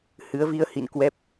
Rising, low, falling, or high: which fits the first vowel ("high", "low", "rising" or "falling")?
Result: rising